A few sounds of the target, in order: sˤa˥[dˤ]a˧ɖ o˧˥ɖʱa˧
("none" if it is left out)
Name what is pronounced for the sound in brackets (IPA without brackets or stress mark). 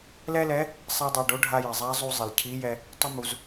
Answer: dˤ